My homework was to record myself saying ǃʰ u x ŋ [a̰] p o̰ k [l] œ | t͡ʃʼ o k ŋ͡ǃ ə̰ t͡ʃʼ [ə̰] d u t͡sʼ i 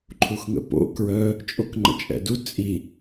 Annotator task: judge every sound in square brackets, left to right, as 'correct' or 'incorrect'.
incorrect, incorrect, incorrect

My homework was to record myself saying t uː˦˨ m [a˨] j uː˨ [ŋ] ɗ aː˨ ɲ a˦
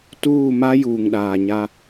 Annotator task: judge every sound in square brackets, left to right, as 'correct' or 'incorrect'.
incorrect, correct

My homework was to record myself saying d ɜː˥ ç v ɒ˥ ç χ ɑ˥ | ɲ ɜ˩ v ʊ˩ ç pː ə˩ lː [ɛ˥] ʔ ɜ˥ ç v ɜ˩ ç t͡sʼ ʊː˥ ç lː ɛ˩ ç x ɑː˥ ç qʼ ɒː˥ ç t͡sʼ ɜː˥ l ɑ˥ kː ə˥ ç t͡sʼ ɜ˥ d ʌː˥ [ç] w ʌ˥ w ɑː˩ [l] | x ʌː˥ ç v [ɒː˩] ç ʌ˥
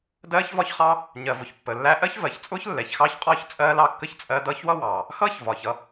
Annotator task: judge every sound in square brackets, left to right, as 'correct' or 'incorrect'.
incorrect, correct, incorrect, correct

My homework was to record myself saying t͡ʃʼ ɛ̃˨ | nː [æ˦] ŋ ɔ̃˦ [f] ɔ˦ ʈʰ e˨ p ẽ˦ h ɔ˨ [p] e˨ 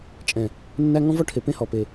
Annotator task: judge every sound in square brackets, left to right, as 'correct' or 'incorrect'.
correct, incorrect, correct

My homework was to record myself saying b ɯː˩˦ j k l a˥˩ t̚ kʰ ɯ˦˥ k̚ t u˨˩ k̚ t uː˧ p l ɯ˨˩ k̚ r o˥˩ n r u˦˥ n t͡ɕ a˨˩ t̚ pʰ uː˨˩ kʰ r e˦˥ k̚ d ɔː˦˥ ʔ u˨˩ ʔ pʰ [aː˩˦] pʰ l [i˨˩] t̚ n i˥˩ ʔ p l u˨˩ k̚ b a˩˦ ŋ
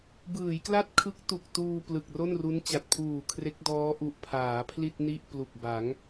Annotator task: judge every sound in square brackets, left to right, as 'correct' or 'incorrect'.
correct, incorrect

